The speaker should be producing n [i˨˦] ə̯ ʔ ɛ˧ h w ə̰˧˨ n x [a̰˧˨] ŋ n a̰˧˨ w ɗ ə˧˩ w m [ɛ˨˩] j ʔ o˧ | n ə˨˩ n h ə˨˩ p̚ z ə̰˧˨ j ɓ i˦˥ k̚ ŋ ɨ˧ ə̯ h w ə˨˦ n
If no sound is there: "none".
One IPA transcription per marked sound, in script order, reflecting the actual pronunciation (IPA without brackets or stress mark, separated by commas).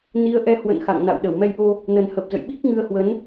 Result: i˨˦, a̰˧˨, ɛ˧